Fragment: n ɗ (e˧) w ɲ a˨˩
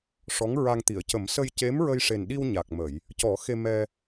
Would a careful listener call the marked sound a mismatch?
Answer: yes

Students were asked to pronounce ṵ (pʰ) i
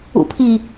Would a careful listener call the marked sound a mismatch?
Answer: no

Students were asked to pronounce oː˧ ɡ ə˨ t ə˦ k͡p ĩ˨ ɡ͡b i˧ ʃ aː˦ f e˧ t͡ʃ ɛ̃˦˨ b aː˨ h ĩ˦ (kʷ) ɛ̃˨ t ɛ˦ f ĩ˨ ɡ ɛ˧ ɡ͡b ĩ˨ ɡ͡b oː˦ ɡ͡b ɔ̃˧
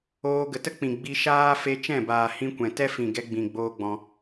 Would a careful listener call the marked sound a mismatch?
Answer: no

